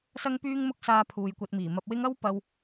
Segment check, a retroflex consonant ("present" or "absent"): absent